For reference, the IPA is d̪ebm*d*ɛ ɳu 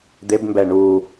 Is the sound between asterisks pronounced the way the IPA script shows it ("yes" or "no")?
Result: no